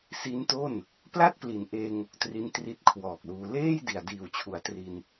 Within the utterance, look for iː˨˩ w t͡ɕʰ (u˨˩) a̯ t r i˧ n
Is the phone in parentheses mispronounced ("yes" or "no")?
yes